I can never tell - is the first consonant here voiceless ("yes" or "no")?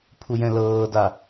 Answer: yes